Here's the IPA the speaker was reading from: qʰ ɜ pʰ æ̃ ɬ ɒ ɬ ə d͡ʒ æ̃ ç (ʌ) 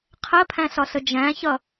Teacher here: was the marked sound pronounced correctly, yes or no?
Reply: yes